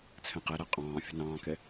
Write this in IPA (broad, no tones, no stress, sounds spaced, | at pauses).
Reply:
t͡sʰ ɛ̃ q ɛ ɾ æ qʼ ɑ̃ː fʲ ə̤ n ɑ̃ː k ɛ